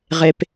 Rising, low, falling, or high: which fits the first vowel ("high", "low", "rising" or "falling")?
low